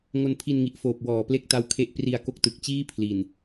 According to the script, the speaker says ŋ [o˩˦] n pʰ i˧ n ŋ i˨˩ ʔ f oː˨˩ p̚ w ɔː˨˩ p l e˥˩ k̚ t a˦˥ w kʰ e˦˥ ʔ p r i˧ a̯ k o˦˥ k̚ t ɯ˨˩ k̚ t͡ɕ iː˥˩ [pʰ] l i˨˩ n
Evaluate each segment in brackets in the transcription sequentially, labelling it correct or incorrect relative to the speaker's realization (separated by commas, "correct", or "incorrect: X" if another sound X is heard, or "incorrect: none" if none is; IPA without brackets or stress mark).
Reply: incorrect: o˧, correct